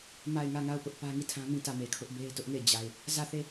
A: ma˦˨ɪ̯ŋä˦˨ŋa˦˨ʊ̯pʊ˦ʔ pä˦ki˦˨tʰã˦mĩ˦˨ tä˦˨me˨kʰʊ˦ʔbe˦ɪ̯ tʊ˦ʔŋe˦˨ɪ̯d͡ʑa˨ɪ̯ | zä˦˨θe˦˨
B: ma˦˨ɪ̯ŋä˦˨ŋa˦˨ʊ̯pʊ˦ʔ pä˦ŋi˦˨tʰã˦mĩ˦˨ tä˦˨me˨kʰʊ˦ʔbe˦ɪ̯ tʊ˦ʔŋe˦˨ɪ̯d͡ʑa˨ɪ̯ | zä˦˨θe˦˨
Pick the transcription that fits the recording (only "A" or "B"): B